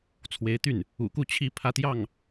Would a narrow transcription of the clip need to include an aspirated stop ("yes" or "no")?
yes